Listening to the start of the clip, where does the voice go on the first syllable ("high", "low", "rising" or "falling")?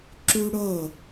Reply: high